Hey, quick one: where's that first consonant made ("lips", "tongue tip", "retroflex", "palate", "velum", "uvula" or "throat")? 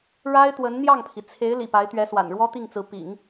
retroflex